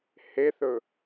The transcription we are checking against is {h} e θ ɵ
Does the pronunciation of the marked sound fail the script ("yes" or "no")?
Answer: no